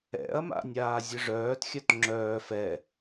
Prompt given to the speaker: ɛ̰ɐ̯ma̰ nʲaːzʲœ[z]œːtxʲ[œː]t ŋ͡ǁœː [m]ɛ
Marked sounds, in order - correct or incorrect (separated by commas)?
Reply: incorrect, incorrect, incorrect